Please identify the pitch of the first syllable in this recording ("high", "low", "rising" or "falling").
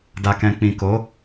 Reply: low